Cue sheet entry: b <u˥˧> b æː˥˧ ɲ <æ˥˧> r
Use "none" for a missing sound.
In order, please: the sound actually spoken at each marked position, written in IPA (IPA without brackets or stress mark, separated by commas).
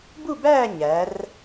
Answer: u˥˧, æ˩˧